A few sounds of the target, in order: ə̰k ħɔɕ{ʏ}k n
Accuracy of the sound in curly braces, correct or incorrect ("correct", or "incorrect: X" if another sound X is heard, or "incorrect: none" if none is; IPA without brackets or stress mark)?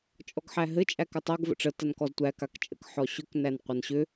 correct